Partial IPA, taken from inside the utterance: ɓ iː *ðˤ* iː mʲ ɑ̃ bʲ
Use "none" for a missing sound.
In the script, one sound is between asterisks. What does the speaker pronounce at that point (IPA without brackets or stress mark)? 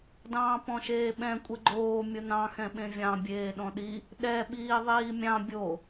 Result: ðˤ